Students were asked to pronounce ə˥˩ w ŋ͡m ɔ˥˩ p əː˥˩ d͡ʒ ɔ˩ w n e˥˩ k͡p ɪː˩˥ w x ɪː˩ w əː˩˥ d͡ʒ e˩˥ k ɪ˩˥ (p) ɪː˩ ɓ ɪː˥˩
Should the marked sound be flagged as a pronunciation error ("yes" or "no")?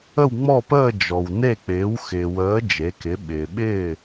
yes